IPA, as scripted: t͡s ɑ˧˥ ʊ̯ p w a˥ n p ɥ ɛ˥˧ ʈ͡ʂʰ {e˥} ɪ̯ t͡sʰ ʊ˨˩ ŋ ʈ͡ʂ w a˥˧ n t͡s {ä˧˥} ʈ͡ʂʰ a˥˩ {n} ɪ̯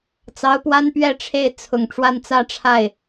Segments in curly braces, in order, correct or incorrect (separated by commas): incorrect, incorrect, incorrect